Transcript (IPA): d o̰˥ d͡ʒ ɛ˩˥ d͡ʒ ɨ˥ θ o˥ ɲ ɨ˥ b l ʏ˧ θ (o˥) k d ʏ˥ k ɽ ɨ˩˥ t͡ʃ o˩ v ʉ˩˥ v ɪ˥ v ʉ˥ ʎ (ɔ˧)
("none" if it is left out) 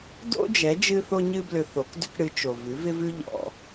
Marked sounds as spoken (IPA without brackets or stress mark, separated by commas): o˩˥, ɔ̰˧